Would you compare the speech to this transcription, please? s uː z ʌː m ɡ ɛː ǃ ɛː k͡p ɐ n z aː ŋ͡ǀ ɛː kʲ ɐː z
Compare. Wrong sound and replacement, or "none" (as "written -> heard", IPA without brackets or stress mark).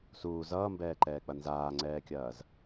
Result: ɡ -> b